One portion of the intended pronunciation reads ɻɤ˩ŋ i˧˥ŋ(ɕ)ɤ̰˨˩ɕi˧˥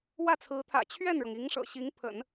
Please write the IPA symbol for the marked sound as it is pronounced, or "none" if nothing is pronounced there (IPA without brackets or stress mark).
ʂ